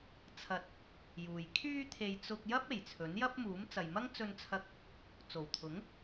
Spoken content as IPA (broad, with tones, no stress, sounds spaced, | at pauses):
t͡sʰ ɐ˧ t̚ | j uː˨ j kʰ yː˧ t̪ʰ e˨ j t͡s ʊ˧ k̚ j ɐ˥ p̚ e˨˩ j t͡sʰ ɵ˨˥ n j ɐ˥ p̚ m uː˨˥ m t͡s ɐ˨ j m ɐ˥ ŋ t͡s ɵ˧ n t͡sʰ ɐ˧ k̚ | t͡s o˨˩ w t̪ʰ ʊ˨˥ ŋ